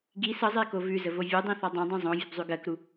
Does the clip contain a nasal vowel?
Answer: yes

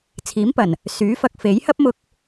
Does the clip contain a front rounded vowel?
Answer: yes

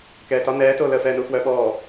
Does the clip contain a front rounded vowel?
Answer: yes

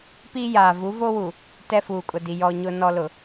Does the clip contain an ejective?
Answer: yes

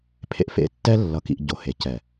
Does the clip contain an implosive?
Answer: no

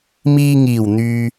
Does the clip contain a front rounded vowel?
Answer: yes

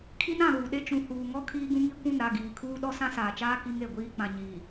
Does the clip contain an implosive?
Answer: yes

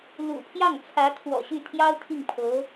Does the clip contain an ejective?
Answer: no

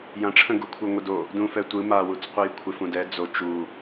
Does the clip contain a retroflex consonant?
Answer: yes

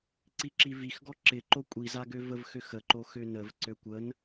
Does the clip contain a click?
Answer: yes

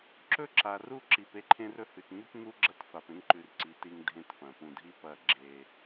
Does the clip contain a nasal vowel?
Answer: yes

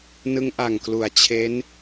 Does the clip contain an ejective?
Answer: no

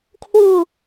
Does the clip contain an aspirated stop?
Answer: yes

